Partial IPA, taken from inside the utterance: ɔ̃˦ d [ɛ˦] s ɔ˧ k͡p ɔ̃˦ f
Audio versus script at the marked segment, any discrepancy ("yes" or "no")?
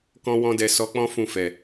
yes